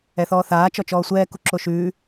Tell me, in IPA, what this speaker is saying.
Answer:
ɛ θ ɔː θ aː t͡ʃ ɔ t͡ʃ ɔː sʷ ɛː k u ǁ o ʃ ʉː

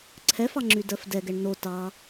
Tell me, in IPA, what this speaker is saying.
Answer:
ǀʰ ɛ f ɑ ŋ͡ǁ y d ɜ f d ɛ ɡ ɛ ɳ n̪ o t ɑ

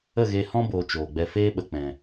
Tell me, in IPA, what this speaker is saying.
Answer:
ə˦˨ ɣ e˧ h ɔ̃˧ b oː˨ t͡ʃ oː˨ ɡ͡b ɛ˧ f eː˦ ɓ ə˨ k͡p ɛ̃˨

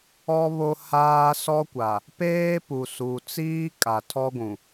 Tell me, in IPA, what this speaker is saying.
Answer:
ɔ˦ β o˦ h aː˦ s ɔ˦ kʷ a˨ | p eː˦ p u˨ s u˨ t͡s iː˦ kʼ a˨ tʰ ɔ˦ ɡʷ ũ˨

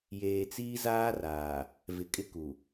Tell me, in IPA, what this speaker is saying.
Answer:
j eː˨ t͡s iː˦ z aː˦ r aː˨ | v ɪ˨ kʼ ɪ˦ k u˨

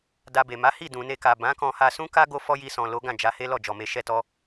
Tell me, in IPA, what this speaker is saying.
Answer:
d a˧ b e˨ m a˨˦ h i˦˨ d ũ˨ n e˧ k a˨ b ã˨˦ k ɔ̃˧ h a˧ s ũ˦ k a˦ ɡ o˦ f ɔ˦ j i˧ s ɔ̃˨ l o˨˦ ɡ ã˦˨ d͡ʒ a˨˦ h e˦ l ɔ˦˨ d͡ʒ ɔ˨ m e˧ ʃ ɛ˧ t ɔ˧

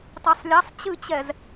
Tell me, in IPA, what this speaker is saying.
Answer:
tˤ ɛ sˤ lʲ a sˤ t͡ɕ ɨ t͡ɕ ɛ z

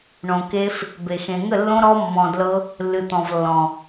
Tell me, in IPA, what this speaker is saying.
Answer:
ɳ õ˨ k e˦ f | b e˨ x ẽ˨ ŋ ə˦˨ lː õ˦ ɾ ɔ˦ mː ɔ̃˨ d l ɤ˦ | lː ɨ˨ t̪ ɔ̃˨ v lː ɔ̃˨

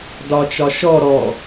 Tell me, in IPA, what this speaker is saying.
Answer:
d ɒ t͡ʃ ɒ ʃ ɔ ɾ ɔ

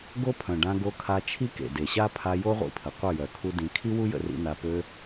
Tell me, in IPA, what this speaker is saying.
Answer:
ɡ o˦ pʰ œ̃˨ ɖ ã˧ ɡ o˧ kʰ a˧ t͡ʃʰ i˦ k ḛ˨ d e˨ ɕ a˦ pʰ a˧ j o˦ ʁʷ ḭ˧ pʰ ə˨ qʷ ə˦˨ j œ˨ kʰ u˦ d ĩ˧ kʰ i˦ w u˦ j ə̰˧ r ḭ˧ n a˧ p ø˧

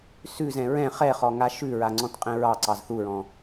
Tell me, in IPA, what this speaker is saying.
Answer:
s ʉ z ɛ̃ ɹ ɛ̃ χ ɛ χ ɔ ŋ a ʃ ʉ ɹ a ŋ͡ǀ ɔ̃ t qʼ ɛ̃ ɹ ɑ ǀ ɑ z θ u ɹ ɔ̃

